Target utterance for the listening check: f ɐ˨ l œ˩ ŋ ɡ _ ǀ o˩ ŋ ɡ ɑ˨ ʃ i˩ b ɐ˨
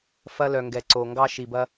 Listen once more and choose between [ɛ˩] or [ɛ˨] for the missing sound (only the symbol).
ɛ˩